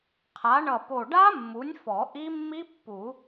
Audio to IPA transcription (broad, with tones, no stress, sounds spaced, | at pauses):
qʰ a˩˥ ɳ ʌ˧˩ p o˧˩ ɖ a˦˥ mː u˩˥ nʲ f ɔ˨˩˦ ʔ i˦˥ mː i˦˥ pː u˨˩˦